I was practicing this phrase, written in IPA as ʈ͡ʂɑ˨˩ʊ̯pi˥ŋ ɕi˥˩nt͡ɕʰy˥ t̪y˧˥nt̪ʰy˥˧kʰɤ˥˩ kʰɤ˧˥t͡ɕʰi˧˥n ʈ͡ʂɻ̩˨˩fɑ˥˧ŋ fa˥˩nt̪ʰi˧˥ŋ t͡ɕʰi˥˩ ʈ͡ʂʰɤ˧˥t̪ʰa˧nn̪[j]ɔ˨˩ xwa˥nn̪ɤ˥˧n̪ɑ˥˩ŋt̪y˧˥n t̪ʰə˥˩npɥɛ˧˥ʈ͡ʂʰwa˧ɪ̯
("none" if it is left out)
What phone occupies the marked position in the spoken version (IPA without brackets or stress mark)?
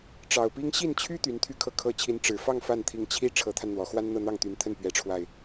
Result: w